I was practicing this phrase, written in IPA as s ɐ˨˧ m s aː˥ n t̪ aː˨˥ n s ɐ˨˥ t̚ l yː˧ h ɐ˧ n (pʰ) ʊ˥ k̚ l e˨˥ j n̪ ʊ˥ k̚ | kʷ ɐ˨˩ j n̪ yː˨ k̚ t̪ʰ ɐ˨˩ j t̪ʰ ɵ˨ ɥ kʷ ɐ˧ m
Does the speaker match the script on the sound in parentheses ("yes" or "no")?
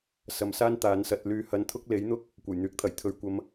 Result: no